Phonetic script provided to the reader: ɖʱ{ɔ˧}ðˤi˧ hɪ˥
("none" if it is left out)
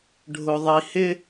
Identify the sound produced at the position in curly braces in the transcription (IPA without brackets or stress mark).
ʊ˧